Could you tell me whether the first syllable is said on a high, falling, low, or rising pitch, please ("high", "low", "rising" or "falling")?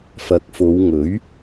rising